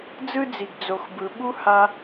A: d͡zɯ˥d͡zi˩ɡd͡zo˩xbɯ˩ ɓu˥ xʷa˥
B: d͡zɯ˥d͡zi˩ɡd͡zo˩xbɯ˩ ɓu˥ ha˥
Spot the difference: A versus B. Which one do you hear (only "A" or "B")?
B